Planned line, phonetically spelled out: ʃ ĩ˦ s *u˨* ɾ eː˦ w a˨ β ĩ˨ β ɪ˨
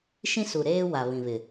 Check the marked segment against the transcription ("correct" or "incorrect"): correct